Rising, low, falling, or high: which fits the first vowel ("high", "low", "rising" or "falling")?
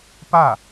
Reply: falling